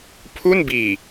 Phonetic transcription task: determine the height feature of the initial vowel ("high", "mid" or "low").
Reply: high